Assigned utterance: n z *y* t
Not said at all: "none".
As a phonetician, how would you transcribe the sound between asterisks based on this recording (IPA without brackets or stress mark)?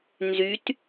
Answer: y